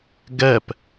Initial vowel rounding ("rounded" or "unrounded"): unrounded